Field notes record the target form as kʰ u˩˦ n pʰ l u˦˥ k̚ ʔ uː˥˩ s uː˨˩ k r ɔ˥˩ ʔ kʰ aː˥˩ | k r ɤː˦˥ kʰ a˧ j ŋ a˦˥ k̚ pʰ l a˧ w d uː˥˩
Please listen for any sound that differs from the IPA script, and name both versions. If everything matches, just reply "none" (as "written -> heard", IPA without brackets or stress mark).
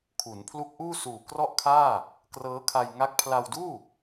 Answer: none